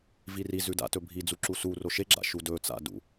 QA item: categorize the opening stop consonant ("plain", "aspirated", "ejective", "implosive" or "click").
plain